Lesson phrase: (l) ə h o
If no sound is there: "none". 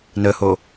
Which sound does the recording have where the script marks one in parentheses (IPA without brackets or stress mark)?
n